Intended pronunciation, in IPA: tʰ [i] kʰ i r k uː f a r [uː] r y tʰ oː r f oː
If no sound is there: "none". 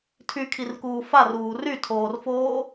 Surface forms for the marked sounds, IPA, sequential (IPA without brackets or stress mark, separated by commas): y, uː